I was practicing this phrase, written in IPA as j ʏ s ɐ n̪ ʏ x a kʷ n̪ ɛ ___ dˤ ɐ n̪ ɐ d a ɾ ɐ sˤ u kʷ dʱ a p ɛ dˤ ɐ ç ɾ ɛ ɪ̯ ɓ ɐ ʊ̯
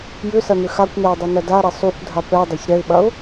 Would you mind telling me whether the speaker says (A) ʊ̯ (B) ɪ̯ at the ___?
B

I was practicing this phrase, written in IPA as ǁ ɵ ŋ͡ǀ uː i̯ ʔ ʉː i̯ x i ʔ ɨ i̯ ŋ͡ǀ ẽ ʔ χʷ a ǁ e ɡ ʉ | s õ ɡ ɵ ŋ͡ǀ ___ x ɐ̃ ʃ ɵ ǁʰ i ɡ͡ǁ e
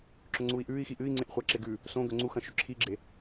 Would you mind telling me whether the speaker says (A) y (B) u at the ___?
B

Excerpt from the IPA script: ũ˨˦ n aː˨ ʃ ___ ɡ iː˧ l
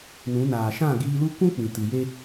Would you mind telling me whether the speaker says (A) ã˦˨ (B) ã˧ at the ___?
A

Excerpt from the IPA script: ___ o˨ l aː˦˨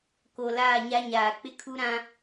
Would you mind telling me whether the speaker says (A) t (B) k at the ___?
B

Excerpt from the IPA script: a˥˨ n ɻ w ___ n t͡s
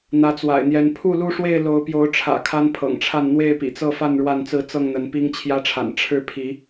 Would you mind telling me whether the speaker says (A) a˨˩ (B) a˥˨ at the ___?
B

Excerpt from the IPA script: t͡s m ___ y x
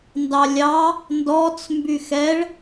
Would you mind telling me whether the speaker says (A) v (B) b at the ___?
B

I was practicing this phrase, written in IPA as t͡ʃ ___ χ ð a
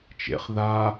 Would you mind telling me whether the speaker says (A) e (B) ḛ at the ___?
B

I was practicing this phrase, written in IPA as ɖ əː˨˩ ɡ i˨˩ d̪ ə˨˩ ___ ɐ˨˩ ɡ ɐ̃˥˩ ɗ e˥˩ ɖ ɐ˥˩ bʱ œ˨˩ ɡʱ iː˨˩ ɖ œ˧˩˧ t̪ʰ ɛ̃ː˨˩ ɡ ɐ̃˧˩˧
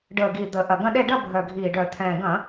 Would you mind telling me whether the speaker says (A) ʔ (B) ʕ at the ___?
A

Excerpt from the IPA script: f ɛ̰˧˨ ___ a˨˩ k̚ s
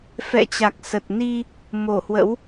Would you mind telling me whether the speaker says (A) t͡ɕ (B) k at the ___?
A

